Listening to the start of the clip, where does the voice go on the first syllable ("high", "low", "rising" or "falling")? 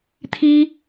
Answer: high